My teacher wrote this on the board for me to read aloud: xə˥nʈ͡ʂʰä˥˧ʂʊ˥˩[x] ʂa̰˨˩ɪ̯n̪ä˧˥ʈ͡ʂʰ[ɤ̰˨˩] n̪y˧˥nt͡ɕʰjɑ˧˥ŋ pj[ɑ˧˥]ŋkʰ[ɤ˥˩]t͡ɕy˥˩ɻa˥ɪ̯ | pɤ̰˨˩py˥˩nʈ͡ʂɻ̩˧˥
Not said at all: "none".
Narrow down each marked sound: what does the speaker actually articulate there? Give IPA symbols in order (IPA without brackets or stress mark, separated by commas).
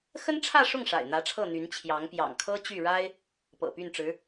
ŋ, ɤ˥˩, ɑ̰˨˩, ɤ˥